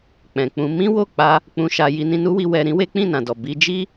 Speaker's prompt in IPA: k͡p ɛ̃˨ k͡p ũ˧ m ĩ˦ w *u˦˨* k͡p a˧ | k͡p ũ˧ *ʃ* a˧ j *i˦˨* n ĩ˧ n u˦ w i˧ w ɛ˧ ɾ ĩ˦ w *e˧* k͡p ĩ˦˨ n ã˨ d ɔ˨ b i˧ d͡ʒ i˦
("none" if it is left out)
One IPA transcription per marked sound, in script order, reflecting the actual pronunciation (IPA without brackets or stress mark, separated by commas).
o˦˨, ʃ, i˧, e˦